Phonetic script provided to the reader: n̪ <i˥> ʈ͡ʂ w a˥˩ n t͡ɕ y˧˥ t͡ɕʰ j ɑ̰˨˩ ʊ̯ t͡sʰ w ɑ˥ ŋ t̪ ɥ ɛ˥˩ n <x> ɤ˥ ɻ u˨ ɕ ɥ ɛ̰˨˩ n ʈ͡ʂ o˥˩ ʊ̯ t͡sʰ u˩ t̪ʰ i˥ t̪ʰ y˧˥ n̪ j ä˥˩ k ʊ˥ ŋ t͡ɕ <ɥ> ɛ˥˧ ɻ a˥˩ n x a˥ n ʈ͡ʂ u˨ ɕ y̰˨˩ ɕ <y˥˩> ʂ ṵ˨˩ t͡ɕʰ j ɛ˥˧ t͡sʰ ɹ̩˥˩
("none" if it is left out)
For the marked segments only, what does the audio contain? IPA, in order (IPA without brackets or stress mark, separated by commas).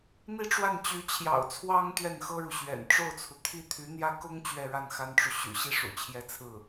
i˥, x, ɥ, i˥˩